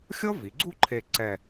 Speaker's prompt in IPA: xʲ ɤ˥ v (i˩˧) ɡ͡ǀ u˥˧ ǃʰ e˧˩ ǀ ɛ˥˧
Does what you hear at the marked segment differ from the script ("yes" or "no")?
no